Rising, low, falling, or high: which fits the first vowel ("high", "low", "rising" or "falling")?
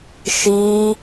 high